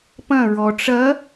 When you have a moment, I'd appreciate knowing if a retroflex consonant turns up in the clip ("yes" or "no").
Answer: yes